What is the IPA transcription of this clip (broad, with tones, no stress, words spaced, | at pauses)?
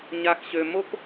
ɲa˨xɕø˨ mo˦k